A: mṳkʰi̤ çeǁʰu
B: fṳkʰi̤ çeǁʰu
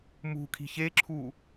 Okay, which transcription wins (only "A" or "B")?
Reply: A